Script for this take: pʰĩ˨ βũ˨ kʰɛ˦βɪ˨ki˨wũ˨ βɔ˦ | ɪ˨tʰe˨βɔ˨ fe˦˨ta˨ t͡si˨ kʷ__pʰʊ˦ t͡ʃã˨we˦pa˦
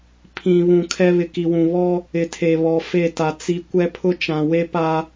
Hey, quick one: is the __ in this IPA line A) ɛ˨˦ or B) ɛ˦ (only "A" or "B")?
B